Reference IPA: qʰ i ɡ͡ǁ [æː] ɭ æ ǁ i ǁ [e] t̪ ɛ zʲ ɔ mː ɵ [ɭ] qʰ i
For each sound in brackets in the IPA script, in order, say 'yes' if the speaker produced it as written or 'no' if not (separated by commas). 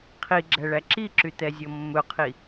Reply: no, no, no